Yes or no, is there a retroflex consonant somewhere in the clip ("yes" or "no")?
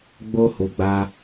no